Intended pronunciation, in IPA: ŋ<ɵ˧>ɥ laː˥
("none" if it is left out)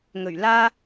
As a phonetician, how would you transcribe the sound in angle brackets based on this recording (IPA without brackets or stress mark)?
ɵ˨˩